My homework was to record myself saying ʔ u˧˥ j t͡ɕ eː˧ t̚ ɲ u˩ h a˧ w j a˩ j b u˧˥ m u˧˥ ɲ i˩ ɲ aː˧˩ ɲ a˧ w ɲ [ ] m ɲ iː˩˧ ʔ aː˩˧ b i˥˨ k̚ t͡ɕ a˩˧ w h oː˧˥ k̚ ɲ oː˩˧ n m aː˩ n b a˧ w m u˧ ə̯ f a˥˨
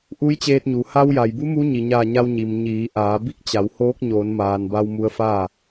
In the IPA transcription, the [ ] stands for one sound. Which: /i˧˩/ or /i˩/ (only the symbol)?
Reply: i˩